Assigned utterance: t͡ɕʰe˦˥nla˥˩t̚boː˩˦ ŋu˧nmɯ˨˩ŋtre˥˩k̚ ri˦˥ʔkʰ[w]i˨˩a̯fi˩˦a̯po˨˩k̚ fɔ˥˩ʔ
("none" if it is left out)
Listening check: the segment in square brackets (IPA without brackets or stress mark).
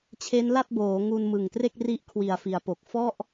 w